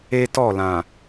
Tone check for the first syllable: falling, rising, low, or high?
high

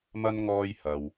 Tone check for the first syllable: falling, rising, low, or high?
high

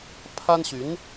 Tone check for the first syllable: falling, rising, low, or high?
high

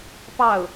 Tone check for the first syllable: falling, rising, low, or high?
falling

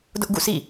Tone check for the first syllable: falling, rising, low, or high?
high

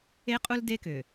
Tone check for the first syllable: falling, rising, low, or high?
high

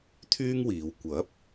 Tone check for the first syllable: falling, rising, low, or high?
high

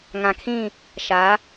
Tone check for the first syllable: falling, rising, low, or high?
low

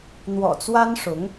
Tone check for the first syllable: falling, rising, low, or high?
low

